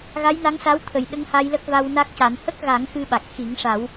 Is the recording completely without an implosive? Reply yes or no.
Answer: no